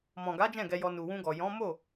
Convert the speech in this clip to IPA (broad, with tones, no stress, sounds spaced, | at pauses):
m ɔ̃˨ ɡ a˨˦ d͡ʒ ɛ̃˦˨ ɡ ɛ˧ j ɔ˧ n u˨ w ũ˧ ɡ ɔ˨ j ɔ̃˨˦ m o˦˨